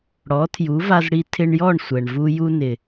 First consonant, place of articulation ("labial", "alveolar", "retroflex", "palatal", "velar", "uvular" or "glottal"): retroflex